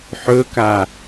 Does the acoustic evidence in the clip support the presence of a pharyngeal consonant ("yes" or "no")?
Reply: yes